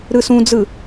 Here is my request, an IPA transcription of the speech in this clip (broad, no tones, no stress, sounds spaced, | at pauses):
ɾ ɯ s ũ d͡z ɯ